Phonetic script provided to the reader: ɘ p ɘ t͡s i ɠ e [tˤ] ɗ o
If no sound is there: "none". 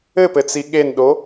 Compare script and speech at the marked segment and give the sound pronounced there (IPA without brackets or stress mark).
n